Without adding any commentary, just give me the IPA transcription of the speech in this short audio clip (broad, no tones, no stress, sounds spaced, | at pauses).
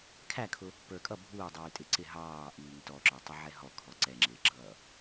kʰ æ kʰ ʊ | p ə˞ kʼ ʌ bʱ uː dˤ iː tʼ ɪ ǀ ɪ ɦ ɑː ʔ iː ŋ t ɔ ǁ ə˞ tˤ ʊ ʕ ɛ ɦ ɔ kʰ ɔ ǀ ɛ ŋ͡ǁ ɪː ɡ͡ǁ ʌː